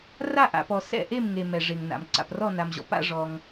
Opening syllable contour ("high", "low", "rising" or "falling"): falling